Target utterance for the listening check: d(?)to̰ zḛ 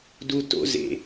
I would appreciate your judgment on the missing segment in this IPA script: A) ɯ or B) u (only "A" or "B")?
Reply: B